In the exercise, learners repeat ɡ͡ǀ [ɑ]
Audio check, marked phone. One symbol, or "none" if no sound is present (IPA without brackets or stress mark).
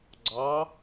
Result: ɑ